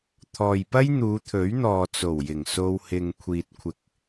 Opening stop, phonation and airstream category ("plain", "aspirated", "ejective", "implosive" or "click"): aspirated